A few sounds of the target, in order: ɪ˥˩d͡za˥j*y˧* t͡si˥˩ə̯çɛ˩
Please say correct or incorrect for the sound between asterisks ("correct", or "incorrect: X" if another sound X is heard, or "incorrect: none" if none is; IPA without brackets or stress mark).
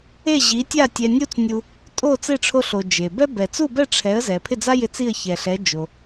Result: incorrect: ɪ˧